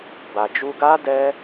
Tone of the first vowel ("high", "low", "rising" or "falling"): low